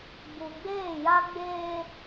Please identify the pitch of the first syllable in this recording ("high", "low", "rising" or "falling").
low